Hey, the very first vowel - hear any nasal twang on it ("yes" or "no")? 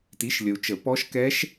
no